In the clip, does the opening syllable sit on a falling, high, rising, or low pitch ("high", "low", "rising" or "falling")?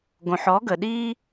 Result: low